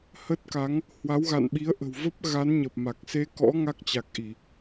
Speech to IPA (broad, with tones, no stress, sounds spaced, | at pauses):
h ə˦˥ t̚ k a˨˦ ŋ | h w a˨˦ w ɣ a̰˧˨ n ɓ i˨˦ ə̯ ʔ ə̤˨˩ w v ə˦˥ p̚ ɣ a˨˦ n ɲ ə˨˩ p̚ m a˨˩ k̚ s e˧ k ɔ̰˧˥ ŋ a˦˥ k̚ t͡ɕ a˨˩ k̚ ʔ i˧˩˨